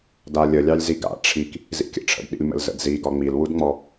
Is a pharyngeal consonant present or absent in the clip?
absent